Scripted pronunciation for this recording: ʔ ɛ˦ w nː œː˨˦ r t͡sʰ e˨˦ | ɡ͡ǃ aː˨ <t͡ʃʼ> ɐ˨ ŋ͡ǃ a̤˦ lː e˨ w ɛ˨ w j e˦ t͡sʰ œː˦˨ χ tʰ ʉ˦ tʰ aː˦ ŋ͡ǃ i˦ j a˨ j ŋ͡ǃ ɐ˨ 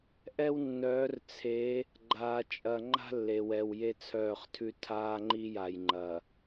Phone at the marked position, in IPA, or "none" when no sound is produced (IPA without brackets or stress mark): t͡ʃʼ